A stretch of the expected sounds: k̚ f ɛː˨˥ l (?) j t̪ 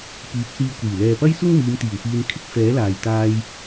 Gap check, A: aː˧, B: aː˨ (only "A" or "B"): B